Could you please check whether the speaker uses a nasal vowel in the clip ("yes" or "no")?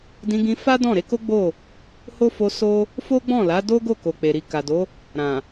yes